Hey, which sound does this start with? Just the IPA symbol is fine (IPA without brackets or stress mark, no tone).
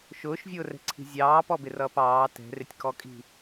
ʃ